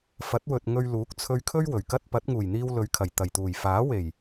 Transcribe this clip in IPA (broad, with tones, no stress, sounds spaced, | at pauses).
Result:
f ɐ˨˥ t̚ w ɵ˨ t̚ ŋ ɵ˧ ɥ l uː˨˥ k̚ t͡sʰ ɵ˧ ɥ kʰ ɵ˥ ɥ w ɵ˨˩ ɥ k ɐ˥ t̚ p ɐ˨˥ t̚ ŋ uː˨˩ j n̪ iː˧ w l ɵ˨˧ ɥ kʰ ɐ˨˩ j t̪ ɐ˨˩ j t̪ uː˨˩ j f aː˨˥ w e˨˩ j